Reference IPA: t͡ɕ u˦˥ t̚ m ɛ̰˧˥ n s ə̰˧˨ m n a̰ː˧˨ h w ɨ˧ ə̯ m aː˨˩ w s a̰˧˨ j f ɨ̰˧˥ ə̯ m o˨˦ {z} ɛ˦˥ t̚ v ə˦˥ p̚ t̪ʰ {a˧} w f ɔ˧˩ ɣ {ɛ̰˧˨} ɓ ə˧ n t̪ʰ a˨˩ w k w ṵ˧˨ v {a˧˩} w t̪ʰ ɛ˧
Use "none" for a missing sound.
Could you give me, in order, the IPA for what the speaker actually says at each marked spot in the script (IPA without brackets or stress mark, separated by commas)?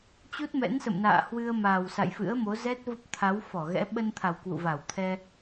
z, a˨˦, ɛ̰˧˥, a˧˩